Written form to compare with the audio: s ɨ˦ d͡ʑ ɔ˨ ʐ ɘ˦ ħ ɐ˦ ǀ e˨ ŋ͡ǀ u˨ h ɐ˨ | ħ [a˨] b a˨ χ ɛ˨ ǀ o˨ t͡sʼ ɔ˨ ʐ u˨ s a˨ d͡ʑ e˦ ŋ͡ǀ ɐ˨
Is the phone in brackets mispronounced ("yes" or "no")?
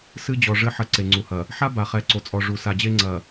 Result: yes